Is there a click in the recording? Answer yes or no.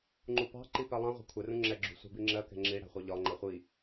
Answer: yes